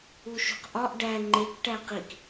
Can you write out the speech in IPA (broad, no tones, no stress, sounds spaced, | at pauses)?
u ʃ ṳ q ʔ ɒ ʔ ɖ æ ŋ͡ǃ e k ʈ æ q i k